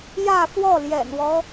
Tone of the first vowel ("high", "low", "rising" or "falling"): falling